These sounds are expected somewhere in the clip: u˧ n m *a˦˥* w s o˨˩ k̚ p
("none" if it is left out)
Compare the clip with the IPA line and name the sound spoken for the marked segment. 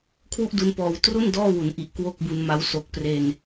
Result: a˦˥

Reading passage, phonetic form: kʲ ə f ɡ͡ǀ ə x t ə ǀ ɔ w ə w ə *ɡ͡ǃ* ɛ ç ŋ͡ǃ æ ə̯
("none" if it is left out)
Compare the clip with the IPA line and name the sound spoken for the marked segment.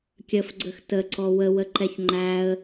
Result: ǃ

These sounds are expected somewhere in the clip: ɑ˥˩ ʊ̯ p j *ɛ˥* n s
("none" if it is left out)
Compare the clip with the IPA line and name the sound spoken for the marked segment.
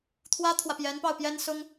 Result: ɛ˥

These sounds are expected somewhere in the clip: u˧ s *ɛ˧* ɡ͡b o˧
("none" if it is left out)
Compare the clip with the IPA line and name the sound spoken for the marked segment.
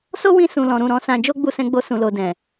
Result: ɛ̃˧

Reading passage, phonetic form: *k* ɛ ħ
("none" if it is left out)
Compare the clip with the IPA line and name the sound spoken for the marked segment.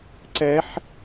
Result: ǀ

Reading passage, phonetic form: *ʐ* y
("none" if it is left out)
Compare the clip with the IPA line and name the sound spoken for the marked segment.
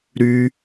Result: ɾ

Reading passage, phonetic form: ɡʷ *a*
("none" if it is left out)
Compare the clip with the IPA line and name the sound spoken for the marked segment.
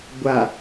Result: a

